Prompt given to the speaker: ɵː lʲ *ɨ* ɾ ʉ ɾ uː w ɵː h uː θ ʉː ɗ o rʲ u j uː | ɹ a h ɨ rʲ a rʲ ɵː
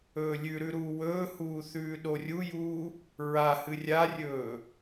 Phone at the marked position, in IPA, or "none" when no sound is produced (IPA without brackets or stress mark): ʉ